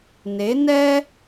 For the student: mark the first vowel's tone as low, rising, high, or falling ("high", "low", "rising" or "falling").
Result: rising